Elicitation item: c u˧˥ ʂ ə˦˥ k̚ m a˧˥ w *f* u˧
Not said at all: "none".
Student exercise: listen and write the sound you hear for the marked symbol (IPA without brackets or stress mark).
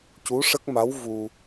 v